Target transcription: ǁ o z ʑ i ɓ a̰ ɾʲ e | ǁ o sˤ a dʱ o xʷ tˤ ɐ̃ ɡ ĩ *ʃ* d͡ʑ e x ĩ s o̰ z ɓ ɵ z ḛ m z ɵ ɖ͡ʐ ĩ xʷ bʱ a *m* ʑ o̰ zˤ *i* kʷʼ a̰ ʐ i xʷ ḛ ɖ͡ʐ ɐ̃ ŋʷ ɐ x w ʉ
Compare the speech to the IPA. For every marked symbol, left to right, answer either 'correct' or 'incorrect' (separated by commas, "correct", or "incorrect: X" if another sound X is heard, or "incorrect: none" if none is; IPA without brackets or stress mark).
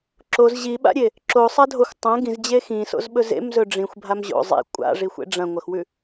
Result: incorrect: z, correct, incorrect: ḭ